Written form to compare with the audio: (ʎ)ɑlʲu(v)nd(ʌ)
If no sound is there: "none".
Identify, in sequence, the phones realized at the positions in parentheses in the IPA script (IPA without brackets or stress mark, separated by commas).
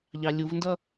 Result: ʎ, v, ʌ